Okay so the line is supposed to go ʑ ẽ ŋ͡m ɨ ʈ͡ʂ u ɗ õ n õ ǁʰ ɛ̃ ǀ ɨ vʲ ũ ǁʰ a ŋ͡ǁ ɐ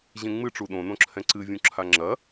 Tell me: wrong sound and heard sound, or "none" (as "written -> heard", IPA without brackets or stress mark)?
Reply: none